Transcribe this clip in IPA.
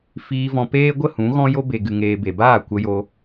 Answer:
f iː˧ v ɔ̃˧ p eː˦ ɡʷ ə˦˨ h ũ˨˦ ɣ ɔ̃˦ j o˦ b e˨ ɡ ɨ˨ ŋ eː˨ b e˨ b aː˦˨ kʷ ə˧ j o˧

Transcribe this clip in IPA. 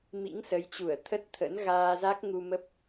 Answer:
m ḭ˧˥ ŋ s ə˨˦ j t͡ɕ u˧˩ ə̯ t̪ʰ ə˦˥ t̚ t̪ʰ ə̰˧˥ n ɣ aː˧ z a˦˥ k̚ ŋ u˧ m ə˦˥ p̚

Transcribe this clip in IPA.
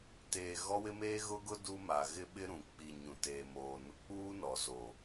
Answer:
t eː˨ ɣ ɔ˦ w ɪ˦ m eː˦ ɣ ʊ˦ ɡ ʊ˦ d u˦ m a˨ ɣ ɪ˦ ɓ ɪ˦ ɾ ũ˨ k͡p i˨ ɲ ũ˨ t eː˨ m oː˨ n ʊ˦ k͡p uː˦ n ɔ˨ z o˨

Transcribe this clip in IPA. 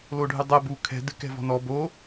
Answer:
l o ɖʱ ɨ dˤ ɛ b u kʰ ɛ̤ d ɨ k ɛ̤ v ɔ̤ n ɔ b o

